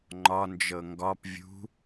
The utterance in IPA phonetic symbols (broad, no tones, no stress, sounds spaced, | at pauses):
ŋ͡ǃ ɒ n d͡ʒ ɤ ŋ ɡ ɒ p vʲ ṳ